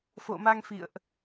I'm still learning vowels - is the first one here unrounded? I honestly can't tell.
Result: no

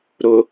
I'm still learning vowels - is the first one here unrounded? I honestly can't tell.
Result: no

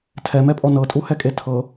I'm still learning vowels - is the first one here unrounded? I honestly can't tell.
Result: yes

